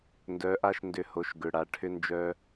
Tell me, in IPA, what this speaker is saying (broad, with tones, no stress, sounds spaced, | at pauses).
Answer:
n d œ˩˧˩ ʔ a˦˨ ʃ n d ʏ˨˩˦ h o˩˧˩ ʃ ɡ ʏ˩˧˩ ɽ a˩˧˩ ʈʰ ʏ˦˥ n d͡ʒ œ˦˥